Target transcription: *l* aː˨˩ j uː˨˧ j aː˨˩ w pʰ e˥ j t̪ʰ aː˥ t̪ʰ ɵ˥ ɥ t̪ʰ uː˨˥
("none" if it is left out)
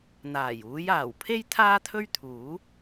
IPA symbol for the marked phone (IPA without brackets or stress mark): n̪